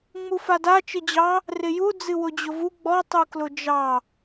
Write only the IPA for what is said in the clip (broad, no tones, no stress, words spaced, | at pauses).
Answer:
ŋ͡mufada t͡ʃɨd͡ʑɑ | rɪju d͡zɨwʊd͡ʑʊvu ɡ͡bɔ tˤuklʊd͡ʒɑ